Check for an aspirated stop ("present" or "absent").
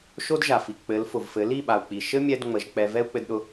absent